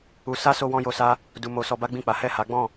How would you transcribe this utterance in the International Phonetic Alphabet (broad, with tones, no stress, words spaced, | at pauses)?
u˧sa˦ so˦wɔ̃˦jo˧sa˦ | du˧mo˧ sɔ˧ba˦ɡ͡bĩ˦˨k͡pa˨˦ hɛ˦˨ha˨˦ɡ͡bɔ̃˦˨